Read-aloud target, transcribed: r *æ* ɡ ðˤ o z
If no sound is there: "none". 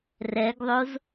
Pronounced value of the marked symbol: ɛ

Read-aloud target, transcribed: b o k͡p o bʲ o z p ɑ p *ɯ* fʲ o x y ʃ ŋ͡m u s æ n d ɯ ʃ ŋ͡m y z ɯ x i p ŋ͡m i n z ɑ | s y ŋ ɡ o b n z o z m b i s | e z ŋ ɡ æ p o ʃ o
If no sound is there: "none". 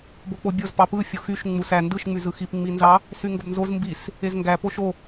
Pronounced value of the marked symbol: ɯ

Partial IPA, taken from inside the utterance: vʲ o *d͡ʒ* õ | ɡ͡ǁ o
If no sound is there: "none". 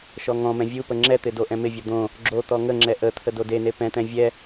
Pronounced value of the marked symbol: d̪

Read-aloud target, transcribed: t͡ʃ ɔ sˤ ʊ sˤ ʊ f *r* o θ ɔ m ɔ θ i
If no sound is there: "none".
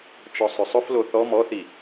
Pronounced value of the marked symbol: l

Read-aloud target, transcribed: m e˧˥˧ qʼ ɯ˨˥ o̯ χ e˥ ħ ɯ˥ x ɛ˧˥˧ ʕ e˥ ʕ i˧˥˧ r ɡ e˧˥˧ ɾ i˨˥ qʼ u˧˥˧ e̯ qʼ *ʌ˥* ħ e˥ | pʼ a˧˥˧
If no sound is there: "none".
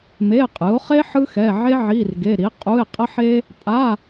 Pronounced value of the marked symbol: ʌ˥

